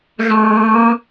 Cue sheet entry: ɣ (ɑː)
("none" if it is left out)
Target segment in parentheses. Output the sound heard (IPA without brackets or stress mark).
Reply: ɑː